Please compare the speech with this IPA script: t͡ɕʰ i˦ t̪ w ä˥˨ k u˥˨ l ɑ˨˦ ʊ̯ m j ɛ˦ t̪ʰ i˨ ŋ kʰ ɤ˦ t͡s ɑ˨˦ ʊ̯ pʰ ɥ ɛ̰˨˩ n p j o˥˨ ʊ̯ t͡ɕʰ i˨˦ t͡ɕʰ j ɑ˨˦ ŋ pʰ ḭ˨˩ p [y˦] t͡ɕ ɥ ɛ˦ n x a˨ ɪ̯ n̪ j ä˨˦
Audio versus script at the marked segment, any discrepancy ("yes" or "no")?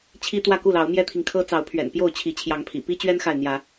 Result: yes